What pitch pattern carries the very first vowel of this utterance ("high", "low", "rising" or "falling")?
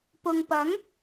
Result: low